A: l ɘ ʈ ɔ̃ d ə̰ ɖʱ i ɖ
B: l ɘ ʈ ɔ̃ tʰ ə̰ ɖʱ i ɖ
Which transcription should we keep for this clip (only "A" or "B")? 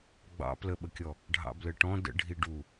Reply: A